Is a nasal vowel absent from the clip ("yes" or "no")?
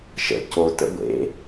yes